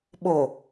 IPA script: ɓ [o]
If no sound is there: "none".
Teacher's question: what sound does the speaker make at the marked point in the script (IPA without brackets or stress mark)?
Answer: o